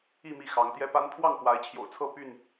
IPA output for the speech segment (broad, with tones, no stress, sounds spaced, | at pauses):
i˥˨ m i˥˨ x ɑ˨˦ ŋ t̪ j ɛ˦ p a˦ n pʰ w ɑ˥˨ ŋ f w a˨˦ ɪ̯ t͡ɕʰ j o̰˨˩ ʊ̯ t͡sʰ ɤ˥˨ p y˥˨ n